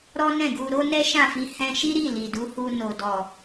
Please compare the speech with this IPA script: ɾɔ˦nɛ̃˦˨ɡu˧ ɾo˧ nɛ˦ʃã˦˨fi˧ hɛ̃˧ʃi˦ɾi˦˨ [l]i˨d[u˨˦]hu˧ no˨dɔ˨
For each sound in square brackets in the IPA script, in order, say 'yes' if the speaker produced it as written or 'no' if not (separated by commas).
yes, yes